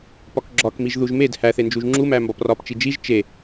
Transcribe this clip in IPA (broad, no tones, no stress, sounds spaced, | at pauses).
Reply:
p ɒ k ɡ͡ǁ ɒ k m i ʒ ð u ʒ m e d h æ θ e n d͡ʒ u ʒ ŋ͡ǁ u m æ m b ɒ p r ɒ p t͡ʃ i d͡ʒ i ʒ t͡ʃ e